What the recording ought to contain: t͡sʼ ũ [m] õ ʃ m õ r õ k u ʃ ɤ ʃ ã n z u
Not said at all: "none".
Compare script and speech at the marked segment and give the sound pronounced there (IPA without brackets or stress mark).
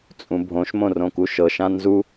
bʱ